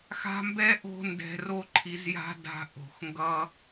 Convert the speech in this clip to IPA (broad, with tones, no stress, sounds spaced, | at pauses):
x a̤˦ m b ɛ˦ ʔ o̤˦ n d ɛ̤˧ r o˦ ǃʰ i˧ z j a̤˦ d a̤˧ ʔ o̤˨ x ŋ ɡ ʌ˧